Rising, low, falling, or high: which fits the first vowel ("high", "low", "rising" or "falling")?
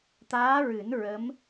rising